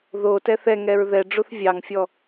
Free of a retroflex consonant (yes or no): no